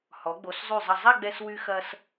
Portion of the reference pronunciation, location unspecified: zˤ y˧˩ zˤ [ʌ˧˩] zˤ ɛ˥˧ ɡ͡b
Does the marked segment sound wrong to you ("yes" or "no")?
yes